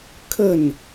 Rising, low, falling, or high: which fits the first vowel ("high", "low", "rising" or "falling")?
falling